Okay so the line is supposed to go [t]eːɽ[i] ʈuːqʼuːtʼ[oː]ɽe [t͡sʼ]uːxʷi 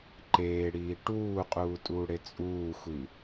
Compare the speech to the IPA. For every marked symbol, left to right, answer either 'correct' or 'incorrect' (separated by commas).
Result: incorrect, incorrect, incorrect, correct